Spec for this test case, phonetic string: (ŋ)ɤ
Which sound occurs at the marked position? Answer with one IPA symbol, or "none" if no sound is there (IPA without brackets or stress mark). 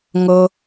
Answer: ŋ